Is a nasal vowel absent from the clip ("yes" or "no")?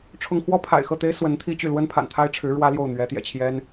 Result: yes